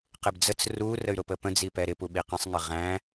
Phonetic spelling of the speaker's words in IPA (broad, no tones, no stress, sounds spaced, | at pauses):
q ɪ b d͡z ə t͡s r u r ə y̯ ɾ ʊ p ə p ə̃ d͡z i p ɛ ɾ ɪ p u ɓ i q ĩ sˤ ŋ ɪ ʁ æ̃